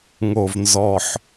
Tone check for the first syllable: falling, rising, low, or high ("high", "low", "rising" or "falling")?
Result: low